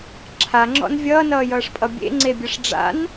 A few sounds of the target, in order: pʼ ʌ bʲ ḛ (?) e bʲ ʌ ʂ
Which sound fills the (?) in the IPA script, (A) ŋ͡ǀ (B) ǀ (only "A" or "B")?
A